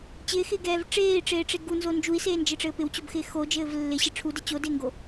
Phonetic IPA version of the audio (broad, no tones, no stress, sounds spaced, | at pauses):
t͡ɕ ɪː x ɪː ɡ ɛː v ʈ͡ʂ eː i̯ ʈ͡ʂ eː ʈ͡ʂ e ɡ u n z o n d͡ʒ u i̯ s eː n d͡ʒ ɪ ʈ͡ʂ ɘː p ɪ w t͡ɕ o b x ɪː x o d͡ʒ ɘː v lː ɪ ɕ ɪ ʈ͡ʂʰ u d ɘ t͡ɕ o d ɪː ŋ ɡ o